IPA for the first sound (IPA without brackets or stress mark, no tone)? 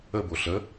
ə